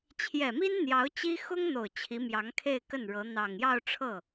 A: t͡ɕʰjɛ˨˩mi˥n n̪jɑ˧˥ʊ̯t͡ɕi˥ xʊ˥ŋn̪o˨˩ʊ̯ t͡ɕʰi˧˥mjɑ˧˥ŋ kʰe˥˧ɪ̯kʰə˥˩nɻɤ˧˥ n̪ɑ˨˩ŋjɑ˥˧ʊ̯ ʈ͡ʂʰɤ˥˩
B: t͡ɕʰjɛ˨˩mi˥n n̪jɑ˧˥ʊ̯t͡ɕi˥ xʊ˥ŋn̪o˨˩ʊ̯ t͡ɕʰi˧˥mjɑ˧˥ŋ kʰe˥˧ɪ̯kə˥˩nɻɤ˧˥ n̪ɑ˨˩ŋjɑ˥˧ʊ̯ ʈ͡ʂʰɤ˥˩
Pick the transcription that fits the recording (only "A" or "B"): B